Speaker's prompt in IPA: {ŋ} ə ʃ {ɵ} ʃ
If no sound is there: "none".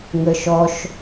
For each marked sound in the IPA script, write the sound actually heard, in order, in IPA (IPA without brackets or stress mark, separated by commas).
ŋ, ɔ